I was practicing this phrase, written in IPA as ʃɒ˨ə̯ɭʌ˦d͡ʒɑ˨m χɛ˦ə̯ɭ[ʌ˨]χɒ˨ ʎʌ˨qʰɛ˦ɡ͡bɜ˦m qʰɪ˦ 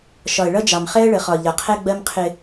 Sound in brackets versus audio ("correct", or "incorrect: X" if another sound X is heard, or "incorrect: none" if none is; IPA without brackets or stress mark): incorrect: ə˨